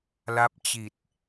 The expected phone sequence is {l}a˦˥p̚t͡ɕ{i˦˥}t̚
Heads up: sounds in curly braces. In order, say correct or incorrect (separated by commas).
correct, incorrect